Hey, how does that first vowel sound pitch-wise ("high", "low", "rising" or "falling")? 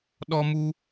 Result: high